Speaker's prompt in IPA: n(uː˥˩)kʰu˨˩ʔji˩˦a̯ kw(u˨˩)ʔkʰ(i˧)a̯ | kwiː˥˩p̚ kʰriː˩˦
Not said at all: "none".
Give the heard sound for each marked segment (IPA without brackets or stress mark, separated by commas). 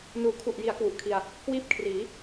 uː˩˦, u˨˩, i˧